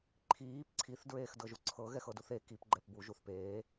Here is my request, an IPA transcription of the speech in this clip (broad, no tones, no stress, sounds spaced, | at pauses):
ǃʰ iː p ǀʰ i θ d ɹ eː x d ɤ ʒ u ǀʰ ɤ ɣ ɛ x ɤ d u θ e k i p ɡ͡ǃ ɛ p b u ʒ u θ p eː